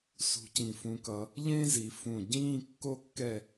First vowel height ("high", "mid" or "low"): high